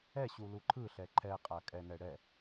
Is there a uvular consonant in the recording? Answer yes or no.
yes